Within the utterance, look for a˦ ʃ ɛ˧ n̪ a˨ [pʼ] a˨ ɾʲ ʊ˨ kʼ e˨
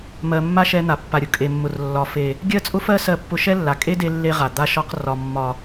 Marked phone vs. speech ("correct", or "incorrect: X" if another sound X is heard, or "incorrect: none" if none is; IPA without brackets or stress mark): incorrect: pː